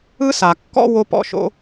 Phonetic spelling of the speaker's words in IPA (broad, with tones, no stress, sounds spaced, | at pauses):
ɯ˥ s a˩ kː ɔ̰˥ w o˥ p ɔ̰˥ ʃ o̰˥